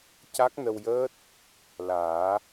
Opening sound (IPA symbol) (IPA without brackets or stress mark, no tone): c